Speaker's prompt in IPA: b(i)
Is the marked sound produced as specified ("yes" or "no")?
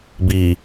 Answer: yes